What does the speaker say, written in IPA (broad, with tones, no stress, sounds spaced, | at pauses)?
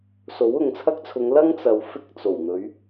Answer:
s o˨˥ w ʊ˨ ŋ t͡sʰ ɐ˥ k̚ t͡sʰ ʊ˨˧ ŋ l ɐ˥ ŋ t͡s ɐ˨ w f ɪ˥ k̚ t͡s o˨˩ w n̪ ɵ˨˧ ɥ